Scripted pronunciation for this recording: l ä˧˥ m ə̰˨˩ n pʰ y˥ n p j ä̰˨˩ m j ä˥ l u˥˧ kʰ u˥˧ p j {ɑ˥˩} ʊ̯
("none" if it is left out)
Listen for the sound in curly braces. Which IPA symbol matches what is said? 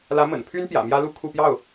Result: ɑ˥˩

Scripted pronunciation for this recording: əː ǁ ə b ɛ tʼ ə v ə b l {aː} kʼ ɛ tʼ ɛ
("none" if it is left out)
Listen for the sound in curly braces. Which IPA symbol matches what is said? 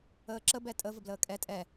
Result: əː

